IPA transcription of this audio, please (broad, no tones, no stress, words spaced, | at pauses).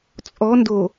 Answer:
t͡sʼɔndo